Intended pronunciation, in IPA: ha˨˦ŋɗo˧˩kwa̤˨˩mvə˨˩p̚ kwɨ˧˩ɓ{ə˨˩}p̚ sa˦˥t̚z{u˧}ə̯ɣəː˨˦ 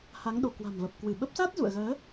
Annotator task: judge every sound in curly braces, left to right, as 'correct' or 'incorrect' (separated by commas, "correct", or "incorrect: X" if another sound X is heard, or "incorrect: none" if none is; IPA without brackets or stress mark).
incorrect: ə˦˥, incorrect: ṵ˧˨